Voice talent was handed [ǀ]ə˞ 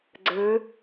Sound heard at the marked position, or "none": ɡ͡ǀ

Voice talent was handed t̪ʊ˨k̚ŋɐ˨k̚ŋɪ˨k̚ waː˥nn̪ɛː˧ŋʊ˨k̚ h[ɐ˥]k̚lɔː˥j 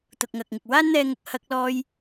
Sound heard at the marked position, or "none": ɐ˥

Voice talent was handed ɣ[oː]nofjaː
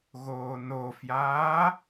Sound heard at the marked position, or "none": oː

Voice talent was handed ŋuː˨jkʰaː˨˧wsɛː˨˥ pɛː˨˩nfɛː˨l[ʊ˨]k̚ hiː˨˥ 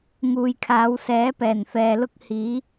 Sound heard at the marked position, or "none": ʊ˥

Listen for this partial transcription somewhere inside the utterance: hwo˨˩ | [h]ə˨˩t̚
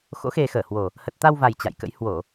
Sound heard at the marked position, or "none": h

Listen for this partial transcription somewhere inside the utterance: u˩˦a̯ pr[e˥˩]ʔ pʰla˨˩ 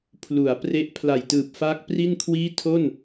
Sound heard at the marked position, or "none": e˦˥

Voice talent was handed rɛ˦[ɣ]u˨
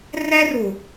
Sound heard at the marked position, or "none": r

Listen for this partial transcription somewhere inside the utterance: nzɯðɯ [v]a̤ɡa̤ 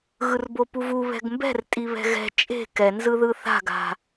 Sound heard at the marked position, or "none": θ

